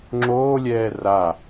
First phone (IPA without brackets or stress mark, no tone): ŋ͡ǁ